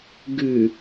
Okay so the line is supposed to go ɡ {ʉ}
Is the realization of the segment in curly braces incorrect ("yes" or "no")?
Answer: no